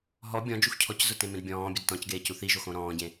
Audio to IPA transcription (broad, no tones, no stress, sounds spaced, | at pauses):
ɦ ɔ bʲ ɔ̃ d͡ʒ u x cʰ ɔ c z ʊ t ẽ m ẽ d bʲ ɔ̃ː bʲ ə d t ɔ̃ c ɡ eː c u θ i ʒ o x õ ɾ ɔ̃ː ɟ ẽ